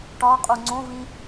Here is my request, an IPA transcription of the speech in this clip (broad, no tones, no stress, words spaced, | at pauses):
ʈɒqʼu ŋ͡ǀõvĩ